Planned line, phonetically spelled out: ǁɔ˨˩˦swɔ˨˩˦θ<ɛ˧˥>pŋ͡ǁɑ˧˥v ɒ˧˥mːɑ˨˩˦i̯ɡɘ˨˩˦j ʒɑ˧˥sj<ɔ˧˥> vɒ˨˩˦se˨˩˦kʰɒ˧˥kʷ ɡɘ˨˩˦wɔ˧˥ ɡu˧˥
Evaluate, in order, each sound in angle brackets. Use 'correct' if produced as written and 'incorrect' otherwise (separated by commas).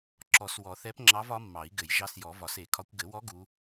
correct, incorrect